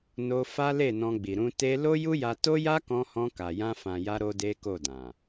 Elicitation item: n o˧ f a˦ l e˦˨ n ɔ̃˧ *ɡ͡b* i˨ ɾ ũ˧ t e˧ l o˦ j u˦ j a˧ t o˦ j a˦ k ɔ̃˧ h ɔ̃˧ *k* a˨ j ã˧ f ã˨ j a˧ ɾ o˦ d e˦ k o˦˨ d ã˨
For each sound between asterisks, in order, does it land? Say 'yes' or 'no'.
yes, yes

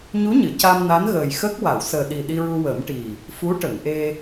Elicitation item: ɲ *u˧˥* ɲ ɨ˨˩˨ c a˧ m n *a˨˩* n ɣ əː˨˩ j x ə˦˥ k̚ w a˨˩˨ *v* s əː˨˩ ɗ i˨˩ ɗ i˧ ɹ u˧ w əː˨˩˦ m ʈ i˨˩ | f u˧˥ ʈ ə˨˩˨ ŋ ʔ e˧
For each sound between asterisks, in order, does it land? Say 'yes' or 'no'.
yes, no, no

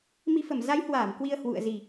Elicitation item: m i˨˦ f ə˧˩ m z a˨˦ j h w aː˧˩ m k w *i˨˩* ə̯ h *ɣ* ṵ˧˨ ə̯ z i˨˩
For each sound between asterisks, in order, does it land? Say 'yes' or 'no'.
no, no

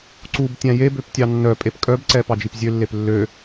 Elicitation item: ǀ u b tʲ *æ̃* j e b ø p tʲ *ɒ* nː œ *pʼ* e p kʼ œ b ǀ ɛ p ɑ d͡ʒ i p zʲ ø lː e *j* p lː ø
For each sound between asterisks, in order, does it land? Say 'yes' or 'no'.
yes, no, yes, no

